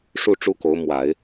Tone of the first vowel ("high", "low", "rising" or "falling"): falling